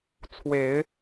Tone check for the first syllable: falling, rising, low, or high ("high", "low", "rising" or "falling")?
low